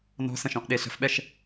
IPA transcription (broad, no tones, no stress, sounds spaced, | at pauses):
n ɔ̤ s ə̃ ʃ ɔ̃ ʔ ɗ e ɬ ə̤ f ɓ ɛ ʃ